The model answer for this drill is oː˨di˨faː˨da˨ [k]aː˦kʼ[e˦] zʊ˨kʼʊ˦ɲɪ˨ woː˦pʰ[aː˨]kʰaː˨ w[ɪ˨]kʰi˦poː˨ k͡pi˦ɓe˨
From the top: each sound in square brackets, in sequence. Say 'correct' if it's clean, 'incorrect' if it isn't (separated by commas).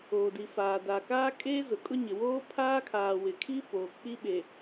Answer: correct, correct, incorrect, correct